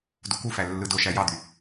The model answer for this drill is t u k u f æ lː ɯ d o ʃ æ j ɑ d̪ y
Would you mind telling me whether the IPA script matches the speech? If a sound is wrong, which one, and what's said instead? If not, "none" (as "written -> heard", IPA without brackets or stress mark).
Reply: t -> d